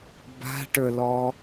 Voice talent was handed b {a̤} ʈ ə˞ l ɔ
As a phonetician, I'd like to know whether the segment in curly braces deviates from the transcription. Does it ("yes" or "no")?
no